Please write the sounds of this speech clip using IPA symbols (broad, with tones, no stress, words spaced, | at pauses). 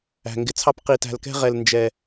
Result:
æ̤˨ŋɡɪ˨t͡sʰɑ˦p qi˨tæ̤˨lkɛ̤˦ʁɛ˨l nd͡ʒɛ˨